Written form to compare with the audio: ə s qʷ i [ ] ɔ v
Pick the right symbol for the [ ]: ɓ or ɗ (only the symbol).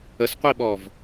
ɓ